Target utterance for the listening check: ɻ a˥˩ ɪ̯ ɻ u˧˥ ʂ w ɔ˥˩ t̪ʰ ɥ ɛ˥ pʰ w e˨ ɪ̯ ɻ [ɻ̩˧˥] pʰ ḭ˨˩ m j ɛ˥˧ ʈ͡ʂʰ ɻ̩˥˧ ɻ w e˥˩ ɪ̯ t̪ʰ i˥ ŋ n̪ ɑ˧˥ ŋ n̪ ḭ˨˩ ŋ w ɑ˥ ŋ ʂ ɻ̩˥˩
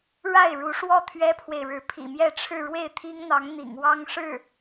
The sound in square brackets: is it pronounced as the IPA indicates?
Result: yes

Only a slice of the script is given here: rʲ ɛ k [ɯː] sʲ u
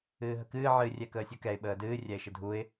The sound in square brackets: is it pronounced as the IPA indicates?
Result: no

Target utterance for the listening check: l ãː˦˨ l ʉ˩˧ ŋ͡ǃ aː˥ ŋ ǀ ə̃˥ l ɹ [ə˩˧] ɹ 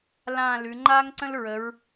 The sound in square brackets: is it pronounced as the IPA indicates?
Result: yes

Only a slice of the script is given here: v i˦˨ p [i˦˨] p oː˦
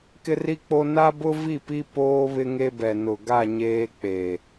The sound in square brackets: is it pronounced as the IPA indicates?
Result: no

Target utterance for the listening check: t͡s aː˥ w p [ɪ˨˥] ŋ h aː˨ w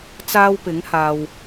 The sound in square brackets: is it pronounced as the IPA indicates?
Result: yes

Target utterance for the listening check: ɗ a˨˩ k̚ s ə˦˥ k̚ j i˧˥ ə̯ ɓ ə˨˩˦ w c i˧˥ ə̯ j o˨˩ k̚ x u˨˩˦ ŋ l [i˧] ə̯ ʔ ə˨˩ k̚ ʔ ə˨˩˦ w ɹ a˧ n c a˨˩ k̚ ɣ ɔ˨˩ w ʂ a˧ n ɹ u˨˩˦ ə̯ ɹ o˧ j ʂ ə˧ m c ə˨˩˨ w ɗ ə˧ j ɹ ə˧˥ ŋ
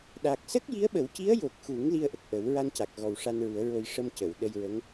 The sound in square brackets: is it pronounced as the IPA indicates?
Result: yes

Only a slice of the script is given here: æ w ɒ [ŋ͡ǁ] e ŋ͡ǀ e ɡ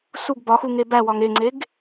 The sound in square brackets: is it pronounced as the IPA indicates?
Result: no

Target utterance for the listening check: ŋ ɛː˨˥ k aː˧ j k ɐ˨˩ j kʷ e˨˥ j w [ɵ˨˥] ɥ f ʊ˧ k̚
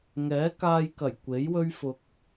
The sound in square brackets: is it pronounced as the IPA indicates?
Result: no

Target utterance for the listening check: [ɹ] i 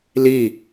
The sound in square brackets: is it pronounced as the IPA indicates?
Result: no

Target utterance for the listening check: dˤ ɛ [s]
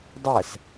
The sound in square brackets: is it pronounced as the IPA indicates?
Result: yes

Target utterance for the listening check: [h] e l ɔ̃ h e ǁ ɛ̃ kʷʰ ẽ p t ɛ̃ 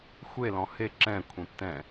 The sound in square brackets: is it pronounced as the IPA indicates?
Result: no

